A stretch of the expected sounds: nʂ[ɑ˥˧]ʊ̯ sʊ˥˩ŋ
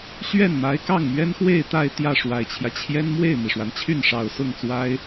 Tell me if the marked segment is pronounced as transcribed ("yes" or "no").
no